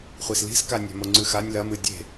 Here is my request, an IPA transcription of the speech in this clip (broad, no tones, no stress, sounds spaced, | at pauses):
χʷ i s l i̤ s k a nʲ a̤ m o ŋ͡ǀ ʉ x a nʲ l ɐ m ɨ dʲ e̤